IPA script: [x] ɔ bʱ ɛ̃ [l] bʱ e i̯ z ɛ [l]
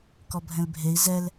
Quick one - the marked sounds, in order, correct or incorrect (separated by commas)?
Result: incorrect, correct, correct